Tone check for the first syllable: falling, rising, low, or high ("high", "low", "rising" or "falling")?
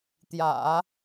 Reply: low